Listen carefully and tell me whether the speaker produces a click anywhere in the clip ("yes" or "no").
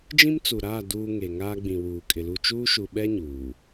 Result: no